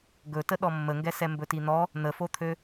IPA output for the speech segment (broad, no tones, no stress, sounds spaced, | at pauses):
ɡ ɵ t ə ɗ ɔ mː ə ŋ ɡ ɛ s ɛ m b ɵ t i n̪ ɔ | n̪ ə f o t̪ʰ ø